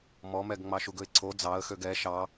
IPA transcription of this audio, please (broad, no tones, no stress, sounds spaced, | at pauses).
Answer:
m ɔ m ɛ ɡ ŋ͡m ɑ ʃ u ɡ ɵ ɪ̯ ǀʰ o d͡z ɑ ə̯ x ø ɡ ɛ ʃ ɑ